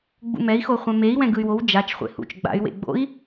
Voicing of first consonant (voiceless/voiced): voiced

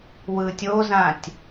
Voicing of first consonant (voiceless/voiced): voiced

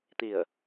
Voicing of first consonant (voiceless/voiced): voiceless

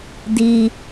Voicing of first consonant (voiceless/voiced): voiced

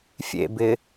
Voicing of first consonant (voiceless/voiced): voiceless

